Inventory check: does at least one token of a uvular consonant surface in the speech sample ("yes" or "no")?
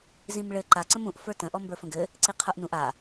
yes